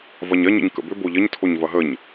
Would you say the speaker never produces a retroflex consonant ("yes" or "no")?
yes